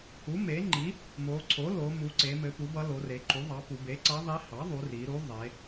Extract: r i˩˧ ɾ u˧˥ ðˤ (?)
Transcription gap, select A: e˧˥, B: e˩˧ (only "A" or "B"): B